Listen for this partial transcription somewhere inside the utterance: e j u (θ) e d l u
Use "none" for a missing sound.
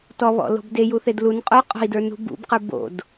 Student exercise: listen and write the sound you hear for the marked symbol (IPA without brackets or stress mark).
θ